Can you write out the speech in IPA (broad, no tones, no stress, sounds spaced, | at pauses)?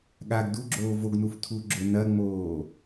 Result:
ɠ a ɡ d u ɡ͡ǁ oː v o ɡ n u f tʰ u ɡ͡ǁ ʊ n ɐ ŋ͡m oː